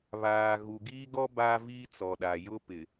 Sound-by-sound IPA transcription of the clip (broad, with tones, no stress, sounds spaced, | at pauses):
β aː˨ ɣ u˨ ɡ iː˦ ɡ ɔ˦ b aː˦ v iː˦ t͡s ɔ˨ ɗ a˨ j ʊ˦ p ɪ˨